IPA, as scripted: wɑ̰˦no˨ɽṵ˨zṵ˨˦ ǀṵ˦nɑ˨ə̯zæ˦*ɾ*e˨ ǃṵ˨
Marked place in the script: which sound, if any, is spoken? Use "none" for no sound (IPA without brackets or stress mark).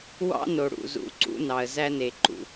n